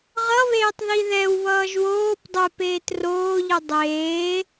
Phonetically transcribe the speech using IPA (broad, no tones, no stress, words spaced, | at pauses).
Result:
ʁʌβeːtˤ ðiðɛwβʌːʒ woːp dˤɛp eːtroːʎɯ dˤeː